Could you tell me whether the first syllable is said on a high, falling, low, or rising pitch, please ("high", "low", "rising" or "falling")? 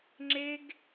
high